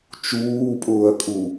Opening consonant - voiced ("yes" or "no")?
no